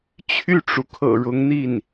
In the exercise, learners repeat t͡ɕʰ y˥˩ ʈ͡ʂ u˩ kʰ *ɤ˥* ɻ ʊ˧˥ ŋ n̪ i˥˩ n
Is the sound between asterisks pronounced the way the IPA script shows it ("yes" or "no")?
no